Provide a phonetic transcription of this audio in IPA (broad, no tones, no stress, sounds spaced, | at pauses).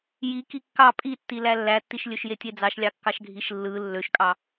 j i k i kː ɑ pʼ i tː i l æ lː æ tː i ʃ lʲ ø ʃ j e tʲ e d͡z ɑ ʃ lʲ ɑ kː ɑ ʃ ɡʱ i ʃ lː ɯ lː ø ʃ kʼ ɑ